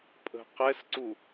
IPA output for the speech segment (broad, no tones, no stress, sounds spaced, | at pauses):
pʼ ə̤ q ɛ s ǀ u